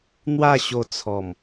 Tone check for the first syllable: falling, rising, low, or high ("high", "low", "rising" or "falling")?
falling